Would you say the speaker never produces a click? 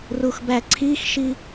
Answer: no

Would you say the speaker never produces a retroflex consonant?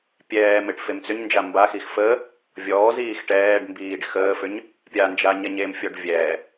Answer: no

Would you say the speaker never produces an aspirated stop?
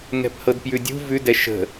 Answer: yes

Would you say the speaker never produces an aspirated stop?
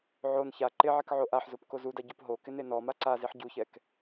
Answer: yes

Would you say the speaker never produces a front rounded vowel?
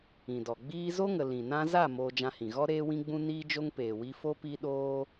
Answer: yes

